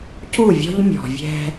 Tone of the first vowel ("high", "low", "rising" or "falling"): falling